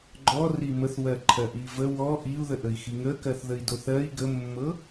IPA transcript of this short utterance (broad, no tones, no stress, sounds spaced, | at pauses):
ɡ͡ǃ ɔ r i m ə θ w ɜ ǃʰ ɜ ʔ i v ə w ɔ ʔ i u̯ ð ə ʔ ə i̯ x i ŋ ə k ɜ θ ð ə i̯ d o θ ɜ i̯ ɡ ə mː ɤ